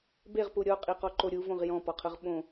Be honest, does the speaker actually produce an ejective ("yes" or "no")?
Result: yes